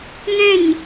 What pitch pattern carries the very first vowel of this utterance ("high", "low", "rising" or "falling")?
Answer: falling